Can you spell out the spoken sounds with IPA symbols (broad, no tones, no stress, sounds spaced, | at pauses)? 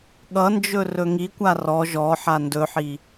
ɠ ʌ n d͡ʒ ɵ r ɵ ŋ i kʷ a r ɔ ʒ ɔ ħ a n d ɵ ħ i